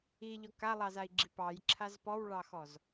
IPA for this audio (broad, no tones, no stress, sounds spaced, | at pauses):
i ʎ ɔ k a lˠ ɑ z a i̯ ɡ͡ǁ i p ɑ j ǁʰ a z p ɔ w ɭ ɑ x ɔ z